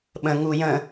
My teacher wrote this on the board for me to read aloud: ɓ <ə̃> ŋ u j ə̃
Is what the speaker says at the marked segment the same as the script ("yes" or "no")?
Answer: yes